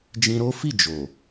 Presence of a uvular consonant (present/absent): absent